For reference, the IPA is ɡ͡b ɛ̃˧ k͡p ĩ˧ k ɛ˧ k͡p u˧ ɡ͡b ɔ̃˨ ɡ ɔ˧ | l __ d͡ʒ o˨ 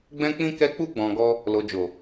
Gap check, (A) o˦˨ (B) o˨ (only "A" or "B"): B